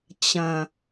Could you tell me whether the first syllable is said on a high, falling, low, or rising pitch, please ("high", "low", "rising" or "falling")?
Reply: low